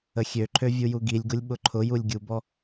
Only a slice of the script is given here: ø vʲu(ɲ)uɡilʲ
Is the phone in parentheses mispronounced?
yes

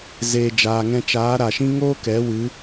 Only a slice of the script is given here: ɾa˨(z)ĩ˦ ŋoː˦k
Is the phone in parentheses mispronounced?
yes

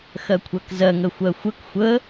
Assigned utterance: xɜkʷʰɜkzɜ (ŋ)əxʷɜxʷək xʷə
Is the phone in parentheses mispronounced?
no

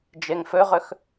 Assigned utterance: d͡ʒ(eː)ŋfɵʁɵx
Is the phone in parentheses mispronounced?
yes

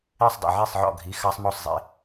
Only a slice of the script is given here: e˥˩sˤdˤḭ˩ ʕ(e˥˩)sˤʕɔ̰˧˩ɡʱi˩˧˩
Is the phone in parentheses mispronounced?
no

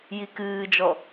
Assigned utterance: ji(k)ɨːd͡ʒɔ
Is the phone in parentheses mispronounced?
no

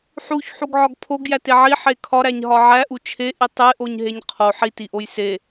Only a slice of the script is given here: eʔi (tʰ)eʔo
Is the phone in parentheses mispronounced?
yes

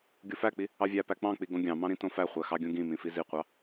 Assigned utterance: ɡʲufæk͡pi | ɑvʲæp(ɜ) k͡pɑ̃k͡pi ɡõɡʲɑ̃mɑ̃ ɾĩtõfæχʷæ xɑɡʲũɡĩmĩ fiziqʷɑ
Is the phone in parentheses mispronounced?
yes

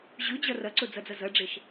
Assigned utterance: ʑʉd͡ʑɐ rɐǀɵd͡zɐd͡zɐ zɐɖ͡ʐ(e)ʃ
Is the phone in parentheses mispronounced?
no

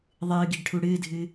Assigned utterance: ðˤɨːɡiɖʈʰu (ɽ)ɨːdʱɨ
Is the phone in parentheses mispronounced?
no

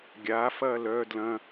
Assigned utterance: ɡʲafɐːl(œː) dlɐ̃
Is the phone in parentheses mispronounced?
no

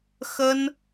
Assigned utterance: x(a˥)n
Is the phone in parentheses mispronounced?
yes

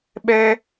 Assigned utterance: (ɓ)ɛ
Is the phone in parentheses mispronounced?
no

